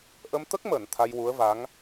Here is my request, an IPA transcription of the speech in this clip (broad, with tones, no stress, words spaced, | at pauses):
ʔə˧mt̪ə˦˥k̚məː˨˩˨n t̪ʰa˧jwu˧˥ə̯va˧˥ŋ